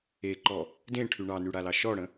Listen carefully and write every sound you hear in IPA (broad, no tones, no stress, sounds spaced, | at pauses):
e ǃ ɔ | d ẽ ʈʰ y ɳ ɑ n y ɽ a l ɑ ʃ ɔ ɽ ə̃